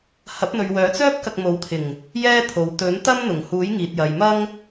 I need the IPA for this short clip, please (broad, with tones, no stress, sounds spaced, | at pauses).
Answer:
h ɐ˨˥ p̚ n̪ ɵ˨ ɥ w œː˨˥ t͡s œː˥ p̚ k ɐ˧ k̚ m o˨˥ w t̪ʰ ɪ˨˩ ŋ | j ɛː˥ t̪ʰ o˨˧ w t̪ ɵ˨˥ n t̪ ɐ˥ m n̪ ʊ˨˩ ŋ h uː˨˥ j ŋ iː˨ t̚ j ɐ˨ j m ɐ˥ ŋ